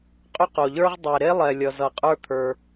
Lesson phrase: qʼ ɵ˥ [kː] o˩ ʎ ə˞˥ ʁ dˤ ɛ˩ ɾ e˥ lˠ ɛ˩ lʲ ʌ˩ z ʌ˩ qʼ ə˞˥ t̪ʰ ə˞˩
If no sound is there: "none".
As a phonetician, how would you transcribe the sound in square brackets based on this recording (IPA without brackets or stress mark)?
q